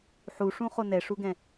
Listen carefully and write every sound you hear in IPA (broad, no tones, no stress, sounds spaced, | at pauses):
ħ u ʂ ũ χ o n ɛ ʂ u ɡ ɛ̃